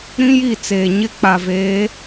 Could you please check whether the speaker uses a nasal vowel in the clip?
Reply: yes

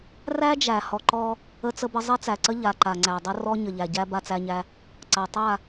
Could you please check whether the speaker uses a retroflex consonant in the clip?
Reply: no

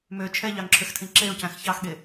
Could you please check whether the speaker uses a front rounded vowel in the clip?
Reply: yes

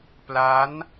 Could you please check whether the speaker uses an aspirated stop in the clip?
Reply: no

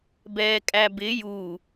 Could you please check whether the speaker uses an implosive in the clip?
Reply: no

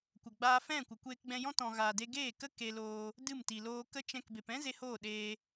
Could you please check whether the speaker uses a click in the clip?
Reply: no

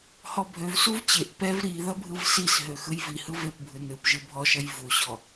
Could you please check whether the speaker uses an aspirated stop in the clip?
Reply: no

